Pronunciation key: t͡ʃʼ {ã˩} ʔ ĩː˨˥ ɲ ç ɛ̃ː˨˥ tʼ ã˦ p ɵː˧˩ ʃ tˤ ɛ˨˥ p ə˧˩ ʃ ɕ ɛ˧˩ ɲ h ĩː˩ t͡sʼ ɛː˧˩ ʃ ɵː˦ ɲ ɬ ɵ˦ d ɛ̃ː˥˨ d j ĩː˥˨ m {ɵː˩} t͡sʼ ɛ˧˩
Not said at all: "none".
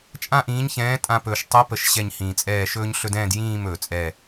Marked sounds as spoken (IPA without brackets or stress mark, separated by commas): ã˥˨, ɵː˩